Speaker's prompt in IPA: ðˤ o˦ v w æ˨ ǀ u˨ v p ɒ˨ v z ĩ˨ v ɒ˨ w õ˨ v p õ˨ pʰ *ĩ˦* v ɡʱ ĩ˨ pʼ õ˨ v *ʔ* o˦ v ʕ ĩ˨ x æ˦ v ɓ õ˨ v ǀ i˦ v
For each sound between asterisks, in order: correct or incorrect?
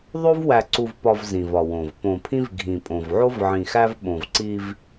correct, incorrect: ʕ

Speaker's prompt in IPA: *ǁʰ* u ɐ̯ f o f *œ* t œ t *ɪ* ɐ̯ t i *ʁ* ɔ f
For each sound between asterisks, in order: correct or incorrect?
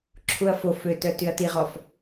correct, incorrect: ø, incorrect: y, correct

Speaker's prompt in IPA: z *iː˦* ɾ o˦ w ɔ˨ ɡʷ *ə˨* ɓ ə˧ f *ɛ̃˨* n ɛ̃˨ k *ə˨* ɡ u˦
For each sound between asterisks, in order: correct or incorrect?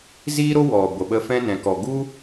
correct, correct, incorrect: ɛ̃˦, incorrect: ɔ˨

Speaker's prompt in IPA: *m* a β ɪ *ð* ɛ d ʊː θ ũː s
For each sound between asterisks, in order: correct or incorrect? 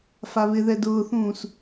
incorrect: f, correct

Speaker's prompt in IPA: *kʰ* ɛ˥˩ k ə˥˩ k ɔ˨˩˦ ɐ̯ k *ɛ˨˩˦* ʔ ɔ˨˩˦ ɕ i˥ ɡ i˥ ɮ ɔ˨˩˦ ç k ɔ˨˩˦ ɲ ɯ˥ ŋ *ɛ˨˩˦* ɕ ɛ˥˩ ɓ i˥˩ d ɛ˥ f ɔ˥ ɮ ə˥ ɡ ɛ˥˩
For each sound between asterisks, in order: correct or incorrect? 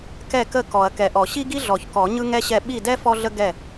incorrect: k, correct, incorrect: ɛ˥

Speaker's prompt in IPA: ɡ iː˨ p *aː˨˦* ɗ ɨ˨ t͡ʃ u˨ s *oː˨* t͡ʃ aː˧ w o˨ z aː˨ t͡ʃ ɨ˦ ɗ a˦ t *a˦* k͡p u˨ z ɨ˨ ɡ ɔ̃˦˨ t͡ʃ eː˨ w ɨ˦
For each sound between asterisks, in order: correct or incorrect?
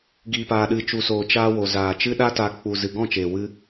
incorrect: aː˨, correct, incorrect: a˧

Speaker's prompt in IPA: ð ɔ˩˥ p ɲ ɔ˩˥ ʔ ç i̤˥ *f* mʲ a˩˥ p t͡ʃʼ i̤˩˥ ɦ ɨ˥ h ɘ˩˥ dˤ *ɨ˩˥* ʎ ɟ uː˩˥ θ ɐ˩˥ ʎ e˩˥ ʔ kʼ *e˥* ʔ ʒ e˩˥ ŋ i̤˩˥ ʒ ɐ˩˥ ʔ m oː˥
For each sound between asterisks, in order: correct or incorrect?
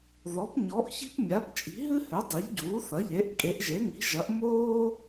incorrect: p, incorrect: i˩˥, incorrect: e˩˥

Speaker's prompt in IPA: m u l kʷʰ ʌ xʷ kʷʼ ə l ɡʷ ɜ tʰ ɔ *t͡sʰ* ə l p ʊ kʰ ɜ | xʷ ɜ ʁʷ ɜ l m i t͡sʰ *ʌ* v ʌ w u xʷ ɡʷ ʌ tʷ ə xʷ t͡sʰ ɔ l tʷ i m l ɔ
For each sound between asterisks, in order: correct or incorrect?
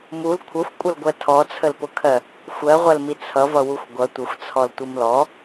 correct, correct

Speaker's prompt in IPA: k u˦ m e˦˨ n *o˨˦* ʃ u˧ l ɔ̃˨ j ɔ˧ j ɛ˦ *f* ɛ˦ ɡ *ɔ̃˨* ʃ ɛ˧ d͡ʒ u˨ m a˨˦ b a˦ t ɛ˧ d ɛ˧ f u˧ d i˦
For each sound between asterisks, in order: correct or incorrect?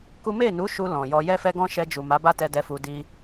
incorrect: u˨˦, correct, incorrect: ɔ̃˦

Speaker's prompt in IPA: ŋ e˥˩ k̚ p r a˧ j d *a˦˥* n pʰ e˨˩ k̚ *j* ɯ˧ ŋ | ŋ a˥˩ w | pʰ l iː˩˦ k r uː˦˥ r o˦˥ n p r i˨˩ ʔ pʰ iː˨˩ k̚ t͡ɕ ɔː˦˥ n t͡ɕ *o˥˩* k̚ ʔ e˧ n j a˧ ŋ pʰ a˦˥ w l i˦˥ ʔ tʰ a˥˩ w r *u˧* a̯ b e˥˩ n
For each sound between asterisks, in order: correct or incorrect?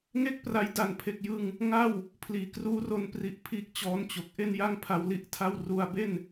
incorrect: a˨˩, correct, incorrect: o˨˩, correct

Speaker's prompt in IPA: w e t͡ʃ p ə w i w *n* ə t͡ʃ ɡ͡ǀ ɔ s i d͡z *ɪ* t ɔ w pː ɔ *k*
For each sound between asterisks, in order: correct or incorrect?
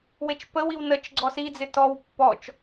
correct, correct, incorrect: t͡ʃ

